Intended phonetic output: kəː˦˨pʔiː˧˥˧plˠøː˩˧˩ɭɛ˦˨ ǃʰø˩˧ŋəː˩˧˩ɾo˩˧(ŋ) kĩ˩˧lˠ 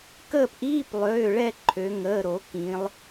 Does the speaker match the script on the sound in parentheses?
no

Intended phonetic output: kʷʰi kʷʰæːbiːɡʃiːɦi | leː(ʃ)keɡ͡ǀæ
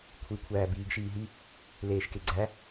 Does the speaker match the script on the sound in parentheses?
yes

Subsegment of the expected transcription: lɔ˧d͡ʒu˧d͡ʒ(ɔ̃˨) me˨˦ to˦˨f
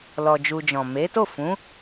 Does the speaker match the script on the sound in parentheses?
yes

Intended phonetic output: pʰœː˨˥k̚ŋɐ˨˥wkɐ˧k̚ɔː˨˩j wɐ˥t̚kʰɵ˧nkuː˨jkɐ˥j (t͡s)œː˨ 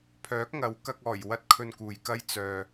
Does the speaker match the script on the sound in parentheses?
yes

